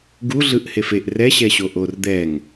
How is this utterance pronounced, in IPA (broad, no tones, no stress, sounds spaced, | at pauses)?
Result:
ɡ u ɮ ɯ ʔ h e f e ʔ r ɛ ɕ ɛ ɕ o ʔ o r d̪ ɛ ŋ